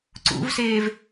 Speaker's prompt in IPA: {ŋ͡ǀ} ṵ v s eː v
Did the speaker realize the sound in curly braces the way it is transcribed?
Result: no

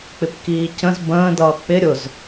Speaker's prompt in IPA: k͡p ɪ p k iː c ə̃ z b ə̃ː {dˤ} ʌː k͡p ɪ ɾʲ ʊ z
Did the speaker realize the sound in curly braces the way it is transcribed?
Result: no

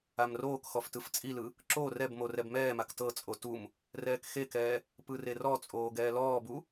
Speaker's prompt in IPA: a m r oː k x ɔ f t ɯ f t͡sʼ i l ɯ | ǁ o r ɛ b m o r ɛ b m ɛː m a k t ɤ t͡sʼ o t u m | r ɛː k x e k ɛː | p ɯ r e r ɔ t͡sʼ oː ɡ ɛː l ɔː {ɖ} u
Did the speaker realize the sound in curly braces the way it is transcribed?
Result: no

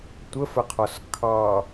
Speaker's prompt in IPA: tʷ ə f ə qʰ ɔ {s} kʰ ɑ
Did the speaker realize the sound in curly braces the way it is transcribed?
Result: yes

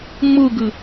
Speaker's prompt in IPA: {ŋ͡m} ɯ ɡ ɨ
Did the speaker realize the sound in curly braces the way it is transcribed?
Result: yes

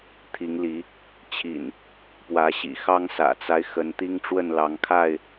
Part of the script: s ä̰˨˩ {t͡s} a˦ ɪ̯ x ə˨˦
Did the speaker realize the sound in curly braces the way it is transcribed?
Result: yes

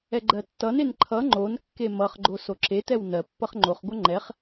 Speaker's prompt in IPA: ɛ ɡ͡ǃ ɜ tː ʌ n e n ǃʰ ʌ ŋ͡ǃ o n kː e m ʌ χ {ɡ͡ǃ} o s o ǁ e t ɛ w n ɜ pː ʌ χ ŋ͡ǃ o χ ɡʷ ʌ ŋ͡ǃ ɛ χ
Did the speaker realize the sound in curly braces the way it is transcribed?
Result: yes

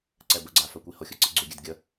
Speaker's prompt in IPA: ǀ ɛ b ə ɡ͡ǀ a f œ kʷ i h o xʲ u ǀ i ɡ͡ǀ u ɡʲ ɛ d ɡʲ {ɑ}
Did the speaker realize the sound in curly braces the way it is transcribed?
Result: no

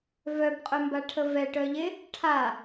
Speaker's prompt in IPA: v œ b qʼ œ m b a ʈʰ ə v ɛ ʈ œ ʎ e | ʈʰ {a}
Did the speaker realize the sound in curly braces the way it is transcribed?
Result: yes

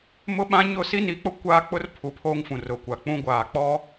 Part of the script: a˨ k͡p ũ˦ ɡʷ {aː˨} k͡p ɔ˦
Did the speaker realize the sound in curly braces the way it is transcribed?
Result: yes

